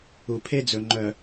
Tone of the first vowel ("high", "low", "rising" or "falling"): low